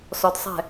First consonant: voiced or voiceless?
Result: voiceless